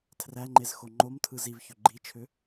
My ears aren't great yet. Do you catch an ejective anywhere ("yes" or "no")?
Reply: no